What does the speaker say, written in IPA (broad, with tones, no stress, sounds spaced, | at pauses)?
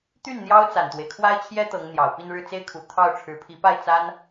t̪ y˥˩ n n̪ j ɑ˥ ʊ̯ t͡s a˨˩ n t̪ w e˦ ɪ̯ kʰ w a˥ ɪ̯ t͡ɕʰ j ɛ˥ t̪ ɤ˧˥ ŋ n̪ j ɑ˨˩ ʊ̯ p i˥˧ n ɻ ɻ̩˥˩ t͡s e˥ ɪ̯ kʰ u˨˩ t̪ʰ ɑ˥˩ ʊ̯ ʈ͡ʂʰ ɻ̩˧˥ pʰ i˧˥ p a˥˩ ɪ̯ t͡s a˥ n